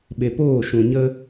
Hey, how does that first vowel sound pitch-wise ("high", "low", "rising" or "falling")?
low